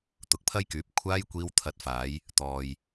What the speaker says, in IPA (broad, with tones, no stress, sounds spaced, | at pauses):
t̪ ʊ˨˥ k̚ pʰ ɐ˥ j k yː˨˥ p̚ kʷʰ aː˥ j kʷ iː˧ w t̪ʰ ɐ˨˥ t̚ f aː˨˧ j | t̪ ɔː˨ j